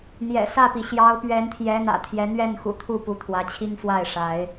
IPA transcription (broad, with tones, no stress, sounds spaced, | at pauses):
n̪ j ɛ̰˨˩ s ä˥˨ p i˩ ɕ j ɑ˨˦ ʊ̯ p ɥ ɛ˨˦ n t̪ʰ j ɛ˨˦ n̪ ä̰˨˩ t̪ʰ j ɛ˨˦ n̪ ɥ ɛ˥˨ n x ṵ˨˩ t̪ʰ u˥˨ p u˨˦ t̪ʰ w ä˨˦ t͡ɕʰ i˦ ŋ f w a˥˨ ɪ̯ ʂ a˨˦ ɪ̯